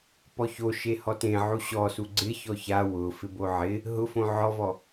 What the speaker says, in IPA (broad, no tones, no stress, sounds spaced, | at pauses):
p ɔ ç o ʃ e h ɔ t ẽ ʕ u ɕ ɔ s u ɡ͡ǀ ɪ ç ɔ ç a w ʊ f ɪ b o ʕ ɪ | ɦ ʊ f õ ʕ ɔ v ɔ